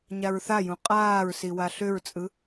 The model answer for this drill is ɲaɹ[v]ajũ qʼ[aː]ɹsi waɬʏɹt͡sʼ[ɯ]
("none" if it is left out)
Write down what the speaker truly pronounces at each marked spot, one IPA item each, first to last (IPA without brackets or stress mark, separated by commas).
θ, aː, ɯ